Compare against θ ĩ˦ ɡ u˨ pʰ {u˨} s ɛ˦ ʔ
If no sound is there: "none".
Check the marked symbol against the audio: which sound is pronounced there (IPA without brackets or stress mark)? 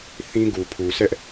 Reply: u˨